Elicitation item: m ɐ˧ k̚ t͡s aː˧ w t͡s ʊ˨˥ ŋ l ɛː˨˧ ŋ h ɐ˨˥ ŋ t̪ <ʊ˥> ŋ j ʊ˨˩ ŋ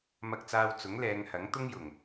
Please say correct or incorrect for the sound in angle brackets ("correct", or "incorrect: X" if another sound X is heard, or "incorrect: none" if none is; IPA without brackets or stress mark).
correct